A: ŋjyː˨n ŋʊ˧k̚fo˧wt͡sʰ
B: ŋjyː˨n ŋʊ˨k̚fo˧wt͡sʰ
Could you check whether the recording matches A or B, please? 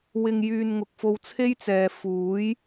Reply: B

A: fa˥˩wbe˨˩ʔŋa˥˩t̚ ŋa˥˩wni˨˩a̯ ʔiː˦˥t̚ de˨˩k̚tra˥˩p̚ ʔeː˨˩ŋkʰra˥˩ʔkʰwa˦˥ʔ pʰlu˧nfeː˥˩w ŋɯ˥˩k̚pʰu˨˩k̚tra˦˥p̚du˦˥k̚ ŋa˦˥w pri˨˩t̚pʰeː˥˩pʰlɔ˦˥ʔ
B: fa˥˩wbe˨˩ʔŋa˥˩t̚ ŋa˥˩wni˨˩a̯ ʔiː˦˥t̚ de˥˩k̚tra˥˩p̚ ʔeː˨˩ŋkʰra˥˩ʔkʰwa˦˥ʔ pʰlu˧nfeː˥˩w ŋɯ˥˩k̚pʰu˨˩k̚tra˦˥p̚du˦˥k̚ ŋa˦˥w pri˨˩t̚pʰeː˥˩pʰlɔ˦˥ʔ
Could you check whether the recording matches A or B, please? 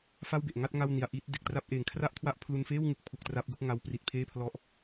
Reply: A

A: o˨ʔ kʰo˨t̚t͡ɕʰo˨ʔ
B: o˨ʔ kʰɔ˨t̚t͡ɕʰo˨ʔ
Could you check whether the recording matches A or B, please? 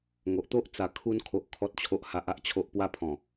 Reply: B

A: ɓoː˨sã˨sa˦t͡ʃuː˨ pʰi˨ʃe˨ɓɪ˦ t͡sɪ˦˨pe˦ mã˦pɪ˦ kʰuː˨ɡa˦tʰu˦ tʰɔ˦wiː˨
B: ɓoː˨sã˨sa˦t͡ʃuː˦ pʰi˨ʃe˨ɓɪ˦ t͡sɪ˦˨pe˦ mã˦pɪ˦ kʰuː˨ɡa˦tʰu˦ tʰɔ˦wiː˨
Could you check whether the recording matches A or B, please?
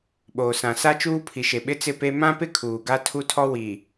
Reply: B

